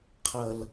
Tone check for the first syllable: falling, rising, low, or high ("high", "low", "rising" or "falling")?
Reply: low